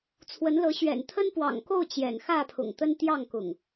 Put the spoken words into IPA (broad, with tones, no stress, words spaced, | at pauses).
t͡sʰwə˨˦nlɤ˨˦ ɕɥɛ̰˨˩n t̪ʰə˦npwɑ̰˨˩ŋko˥˨ʊ̯ t͡ɕjɛ̰˨˩nxä˥˨pʰʊ̰˨˩ŋ t̪ə˦nt̪jɑ˥˨ŋkʊ̰˨˩ŋ